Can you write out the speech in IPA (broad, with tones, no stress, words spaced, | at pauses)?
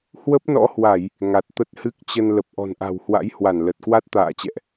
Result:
hwə˦˥p̚nɔ̰˧˥hwa˧˩˨j | ŋa˨˩t̚t̪ə˦˥t̚hɨ˦˥k̚t͡ɕə˧n lə˨˩p̚ʔɔ̤˨˩nʔa̤˨˩whwa̰˧˥j hwa˧˩nlə˨˩t̚kwa˦˥t̚ t̪a̰ː˧˨t͡ɕɛ̰˧˨ʔ